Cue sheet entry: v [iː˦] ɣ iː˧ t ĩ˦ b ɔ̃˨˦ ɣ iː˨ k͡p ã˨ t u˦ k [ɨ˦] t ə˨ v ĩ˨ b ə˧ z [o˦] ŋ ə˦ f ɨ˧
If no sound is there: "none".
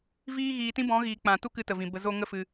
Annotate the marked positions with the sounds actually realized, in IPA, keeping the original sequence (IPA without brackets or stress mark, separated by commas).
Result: iː˦, ɨ˧, o˦